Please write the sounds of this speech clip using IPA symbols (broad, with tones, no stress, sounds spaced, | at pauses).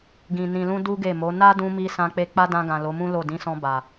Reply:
ɡ ĩ˨ n ĩ˨ l ũ˧ d u˦ ɡ e˦˨ m o˨˦ n a˦ d ũ˧ m i˧ s ã˧ k͡p e˧ k͡p a˦ d ã˧ ɡ ã˨ l o˨˦ m ũ˦ l o˦˨ d ĩ˨˦ s ɔ̃˧ b a˨